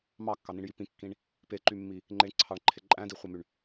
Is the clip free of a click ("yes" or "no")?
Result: no